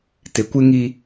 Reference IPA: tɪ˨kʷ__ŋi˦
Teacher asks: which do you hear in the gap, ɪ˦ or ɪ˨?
ɪ˦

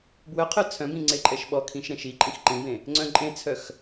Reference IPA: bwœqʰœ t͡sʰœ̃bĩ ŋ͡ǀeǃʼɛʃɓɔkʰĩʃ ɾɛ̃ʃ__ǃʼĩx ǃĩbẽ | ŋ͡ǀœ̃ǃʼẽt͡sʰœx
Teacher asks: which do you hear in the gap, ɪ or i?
i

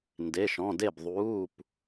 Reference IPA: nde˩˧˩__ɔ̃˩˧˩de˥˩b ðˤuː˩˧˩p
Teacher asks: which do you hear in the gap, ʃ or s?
ʃ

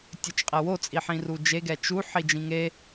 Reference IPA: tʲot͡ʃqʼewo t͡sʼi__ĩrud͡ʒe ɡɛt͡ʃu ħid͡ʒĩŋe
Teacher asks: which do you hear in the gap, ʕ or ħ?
ħ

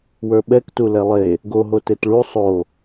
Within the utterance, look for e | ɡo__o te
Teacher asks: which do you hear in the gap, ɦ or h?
ɦ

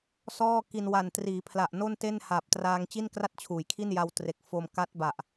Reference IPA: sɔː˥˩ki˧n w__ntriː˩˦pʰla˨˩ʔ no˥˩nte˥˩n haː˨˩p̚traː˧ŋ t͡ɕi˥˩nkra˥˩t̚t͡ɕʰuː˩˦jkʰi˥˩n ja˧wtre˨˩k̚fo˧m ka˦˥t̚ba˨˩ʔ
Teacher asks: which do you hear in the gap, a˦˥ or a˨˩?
a˨˩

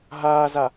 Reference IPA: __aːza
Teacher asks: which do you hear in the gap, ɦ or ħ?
ɦ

